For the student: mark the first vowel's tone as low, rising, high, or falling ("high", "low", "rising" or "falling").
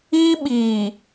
high